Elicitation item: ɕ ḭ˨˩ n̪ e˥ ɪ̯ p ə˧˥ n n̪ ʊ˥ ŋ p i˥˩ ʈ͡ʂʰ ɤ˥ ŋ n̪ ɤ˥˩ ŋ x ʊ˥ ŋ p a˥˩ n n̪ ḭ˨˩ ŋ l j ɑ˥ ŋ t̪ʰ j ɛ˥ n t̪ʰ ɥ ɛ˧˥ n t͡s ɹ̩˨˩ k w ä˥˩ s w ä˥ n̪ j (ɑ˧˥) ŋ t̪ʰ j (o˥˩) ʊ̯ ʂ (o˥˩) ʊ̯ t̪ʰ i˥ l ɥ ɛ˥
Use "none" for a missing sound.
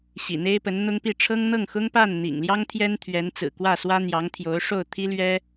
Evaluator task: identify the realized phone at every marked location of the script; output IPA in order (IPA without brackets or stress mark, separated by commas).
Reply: ɑ˧˥, o˧˥, o˥˩